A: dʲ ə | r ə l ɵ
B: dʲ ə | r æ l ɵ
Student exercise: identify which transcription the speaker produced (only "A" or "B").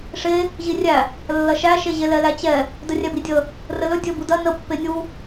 A